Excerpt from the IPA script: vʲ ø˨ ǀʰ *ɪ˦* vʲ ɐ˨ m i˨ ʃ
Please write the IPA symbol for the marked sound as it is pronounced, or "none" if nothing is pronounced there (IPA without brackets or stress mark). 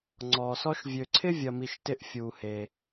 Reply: ɪ˦